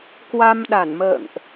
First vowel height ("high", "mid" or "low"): low